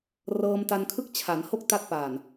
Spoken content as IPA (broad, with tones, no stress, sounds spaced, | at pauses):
r ɤː˧ m t a˧ n kʰ ɯ˥˩ k̚ t͡ɕʰ a˩˦ n h o˥˩ k̚ t a˦˥ t̚ p aː˨˩ n